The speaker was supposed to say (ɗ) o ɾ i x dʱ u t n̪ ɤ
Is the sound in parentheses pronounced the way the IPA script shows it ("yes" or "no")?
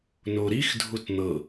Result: no